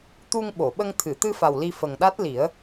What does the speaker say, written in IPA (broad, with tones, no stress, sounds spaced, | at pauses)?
t̪ u˧ ŋ ɓ o˨˩˨ ɓ ə˧ ŋ t̪ʰ ɨ˨˩˨ t̪ ɨ˧ f a˨˩ w l i˧ f ə˨˩ ŋ ɗ a˦˥ t̚ l i˨˩˦ ə̯